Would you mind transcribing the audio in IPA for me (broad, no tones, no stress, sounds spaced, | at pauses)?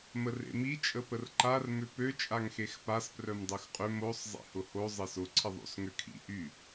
m ə r ḛ m i t͡ʃʼ ə p ə r ǃ a r m ʏ p ø t͡ʃʼ a ŋ x e x p a s p r œ m dˤ ø x qʼ ʏ m o sˤ zˤ ḛ h ʊ h o zˤ ɪ s ʊ ǀʰ ɪ ðˤ o̰ s ŋ ø kʰ ḭ ʔ y